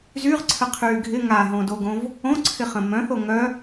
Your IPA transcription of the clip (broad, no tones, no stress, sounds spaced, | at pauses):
z y ʁ ǀʰ ə qʰ yː ɡʱ ɪ ŋ a ɦ õ d o ɡ õ v | õ ǀʰ ɪ χ ə̃ m œ̃ θ o ŋ œ